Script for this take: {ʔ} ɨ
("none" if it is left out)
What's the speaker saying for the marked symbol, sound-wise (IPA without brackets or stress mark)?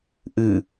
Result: ʔ